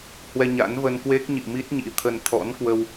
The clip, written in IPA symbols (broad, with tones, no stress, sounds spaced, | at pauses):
h w ɛ˧ ɲ a̰˧˥ n v ə˧ n k w e˦˥ k̚ ɲ ḭ˧˨ m i˦˥ t̚ ɲ ḭ˧˥ t̪ʰ ə˧ n t̪ʰ ɔ̰˧˥ n k w ə˧ w